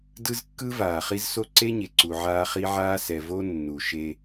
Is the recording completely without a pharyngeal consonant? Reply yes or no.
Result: no